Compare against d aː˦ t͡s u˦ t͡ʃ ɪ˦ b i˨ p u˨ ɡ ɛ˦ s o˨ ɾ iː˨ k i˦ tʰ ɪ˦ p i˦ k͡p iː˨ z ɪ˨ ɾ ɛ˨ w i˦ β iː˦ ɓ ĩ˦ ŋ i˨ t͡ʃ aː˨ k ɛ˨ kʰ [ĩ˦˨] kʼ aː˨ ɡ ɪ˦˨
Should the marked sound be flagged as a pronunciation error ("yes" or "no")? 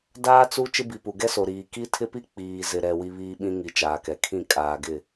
no